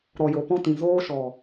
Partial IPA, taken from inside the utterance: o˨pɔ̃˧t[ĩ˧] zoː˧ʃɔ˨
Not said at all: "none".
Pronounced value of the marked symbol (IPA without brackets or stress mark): ĩ˨